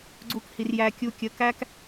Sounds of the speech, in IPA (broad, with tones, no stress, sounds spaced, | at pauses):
ɡ͡ǀ u˧ k h i˨ r j æ˧ kʲ u˧ kʲ ə˨˦ k æ˦ k